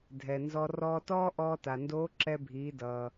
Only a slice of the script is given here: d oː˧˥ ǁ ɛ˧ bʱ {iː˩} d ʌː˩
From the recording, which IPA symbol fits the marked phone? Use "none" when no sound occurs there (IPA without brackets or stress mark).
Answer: iː˩˧